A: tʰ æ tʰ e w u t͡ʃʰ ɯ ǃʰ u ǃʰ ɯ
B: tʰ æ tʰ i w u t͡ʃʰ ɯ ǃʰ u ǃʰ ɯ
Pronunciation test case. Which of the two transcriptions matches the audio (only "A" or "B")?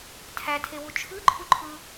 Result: A